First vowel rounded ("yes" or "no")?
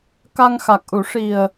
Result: no